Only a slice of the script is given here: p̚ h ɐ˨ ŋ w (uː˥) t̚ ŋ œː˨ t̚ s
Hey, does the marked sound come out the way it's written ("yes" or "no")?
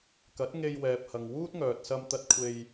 yes